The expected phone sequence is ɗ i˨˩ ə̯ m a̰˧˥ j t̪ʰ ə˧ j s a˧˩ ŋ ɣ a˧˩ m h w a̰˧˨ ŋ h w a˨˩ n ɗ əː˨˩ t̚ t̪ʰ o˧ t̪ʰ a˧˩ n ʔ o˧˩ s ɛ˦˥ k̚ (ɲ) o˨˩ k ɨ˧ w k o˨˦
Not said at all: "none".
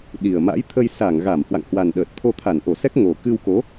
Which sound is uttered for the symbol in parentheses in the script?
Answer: ŋ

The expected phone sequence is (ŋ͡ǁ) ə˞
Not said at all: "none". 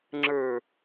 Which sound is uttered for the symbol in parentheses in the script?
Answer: ŋ͡ǁ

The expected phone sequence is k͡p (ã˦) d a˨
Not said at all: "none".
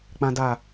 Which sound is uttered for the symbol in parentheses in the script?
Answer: ã˨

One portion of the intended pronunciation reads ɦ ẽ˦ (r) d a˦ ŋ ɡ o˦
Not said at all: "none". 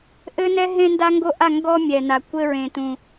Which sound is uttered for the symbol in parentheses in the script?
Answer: n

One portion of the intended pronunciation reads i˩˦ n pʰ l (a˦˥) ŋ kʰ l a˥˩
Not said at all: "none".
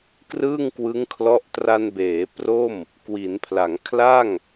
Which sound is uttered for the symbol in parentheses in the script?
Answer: a˩˦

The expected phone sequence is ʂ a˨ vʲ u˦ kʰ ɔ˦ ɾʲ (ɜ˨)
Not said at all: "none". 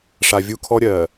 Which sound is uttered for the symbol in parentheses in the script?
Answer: ɜ˨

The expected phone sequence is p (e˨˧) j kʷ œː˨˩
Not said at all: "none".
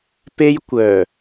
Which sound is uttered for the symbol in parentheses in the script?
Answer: e˥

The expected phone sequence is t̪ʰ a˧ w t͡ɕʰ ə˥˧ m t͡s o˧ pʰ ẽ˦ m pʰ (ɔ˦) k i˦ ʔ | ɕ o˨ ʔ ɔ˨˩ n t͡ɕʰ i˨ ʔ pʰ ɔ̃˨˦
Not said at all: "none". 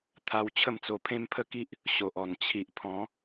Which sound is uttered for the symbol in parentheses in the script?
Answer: ə˦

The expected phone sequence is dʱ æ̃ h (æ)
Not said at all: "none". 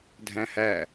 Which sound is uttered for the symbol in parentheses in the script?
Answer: æ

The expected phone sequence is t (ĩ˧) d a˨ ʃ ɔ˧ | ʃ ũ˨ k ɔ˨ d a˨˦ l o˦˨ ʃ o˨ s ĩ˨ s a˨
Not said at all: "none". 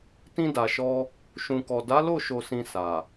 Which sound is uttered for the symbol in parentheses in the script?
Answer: ĩ˧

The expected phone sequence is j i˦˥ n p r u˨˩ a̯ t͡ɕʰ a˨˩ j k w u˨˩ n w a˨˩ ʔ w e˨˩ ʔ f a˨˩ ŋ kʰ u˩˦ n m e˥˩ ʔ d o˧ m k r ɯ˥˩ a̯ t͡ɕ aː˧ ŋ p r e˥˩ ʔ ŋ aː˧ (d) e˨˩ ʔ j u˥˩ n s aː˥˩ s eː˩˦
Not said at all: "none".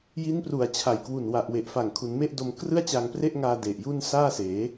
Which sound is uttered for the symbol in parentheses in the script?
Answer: d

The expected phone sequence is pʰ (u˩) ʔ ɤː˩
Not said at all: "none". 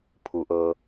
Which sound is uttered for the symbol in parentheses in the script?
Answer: u˩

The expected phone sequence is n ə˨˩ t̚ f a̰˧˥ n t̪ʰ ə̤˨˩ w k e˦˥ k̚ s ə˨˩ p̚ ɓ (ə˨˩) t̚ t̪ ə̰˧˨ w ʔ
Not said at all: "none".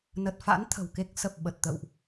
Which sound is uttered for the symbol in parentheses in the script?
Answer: ə˨˩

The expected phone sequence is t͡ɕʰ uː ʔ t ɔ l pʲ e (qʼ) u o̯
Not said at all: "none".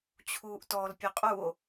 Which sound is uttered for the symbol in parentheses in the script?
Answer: qʼ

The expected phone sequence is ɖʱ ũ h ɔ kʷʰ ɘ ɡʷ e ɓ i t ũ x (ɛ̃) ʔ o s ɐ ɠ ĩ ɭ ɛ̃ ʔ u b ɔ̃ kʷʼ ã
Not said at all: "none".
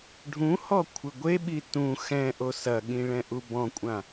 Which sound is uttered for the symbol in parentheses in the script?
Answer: ɛ̃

